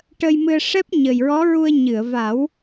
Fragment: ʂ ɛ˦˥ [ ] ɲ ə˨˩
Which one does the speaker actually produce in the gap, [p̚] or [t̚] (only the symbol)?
p̚